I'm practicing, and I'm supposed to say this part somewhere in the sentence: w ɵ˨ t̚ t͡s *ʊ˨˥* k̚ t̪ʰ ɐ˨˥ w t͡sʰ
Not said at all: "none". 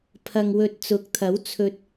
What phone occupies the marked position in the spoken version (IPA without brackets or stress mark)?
ʊ˨˥